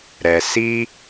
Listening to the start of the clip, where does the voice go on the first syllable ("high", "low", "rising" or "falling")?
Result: low